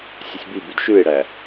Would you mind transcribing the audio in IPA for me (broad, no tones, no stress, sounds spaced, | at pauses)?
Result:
sʲ ɵ sʲ b i b y d ʃ ʉ e̯ ɽ æ